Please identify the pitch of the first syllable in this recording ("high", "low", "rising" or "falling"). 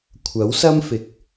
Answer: rising